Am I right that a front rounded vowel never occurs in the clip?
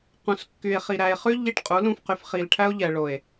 no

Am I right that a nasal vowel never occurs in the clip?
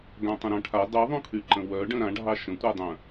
no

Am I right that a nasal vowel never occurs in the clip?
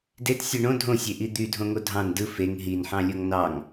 no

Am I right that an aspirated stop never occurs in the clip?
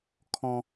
no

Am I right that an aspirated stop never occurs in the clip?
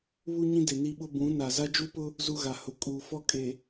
yes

